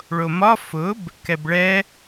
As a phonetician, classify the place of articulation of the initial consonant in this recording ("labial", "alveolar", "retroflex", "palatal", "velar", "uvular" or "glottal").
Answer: retroflex